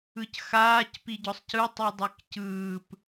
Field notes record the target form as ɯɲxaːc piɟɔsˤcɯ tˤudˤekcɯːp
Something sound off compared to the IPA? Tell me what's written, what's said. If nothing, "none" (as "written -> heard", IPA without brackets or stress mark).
ɲ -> c